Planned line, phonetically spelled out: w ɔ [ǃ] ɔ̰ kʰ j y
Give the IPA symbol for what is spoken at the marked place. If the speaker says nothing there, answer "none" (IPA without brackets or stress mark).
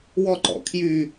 ǃ